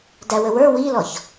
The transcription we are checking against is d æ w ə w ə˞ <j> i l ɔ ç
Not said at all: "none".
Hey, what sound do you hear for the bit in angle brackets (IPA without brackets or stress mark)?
w